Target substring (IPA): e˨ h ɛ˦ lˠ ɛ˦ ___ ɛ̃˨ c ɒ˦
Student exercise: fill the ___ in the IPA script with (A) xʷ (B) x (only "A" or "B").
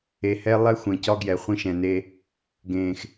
A